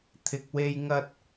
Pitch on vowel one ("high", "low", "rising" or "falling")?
low